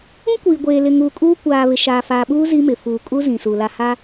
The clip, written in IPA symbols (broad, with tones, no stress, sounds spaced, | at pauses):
ũ˦ kʷ iː˨ ɡʷ eː˨ l ɪ˨ ŋ uː˨ kʼ uː˦ kʷ aː˨ β ɪ˨ ʃ aː˨ f aː˨ ɓ uː˦ z i˦ m ɪ˨ f uː˨ kʼ u˦ z ĩ˨ s u˨ l a˨ h a˦